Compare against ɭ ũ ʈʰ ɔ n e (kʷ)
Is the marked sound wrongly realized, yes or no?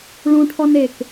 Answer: yes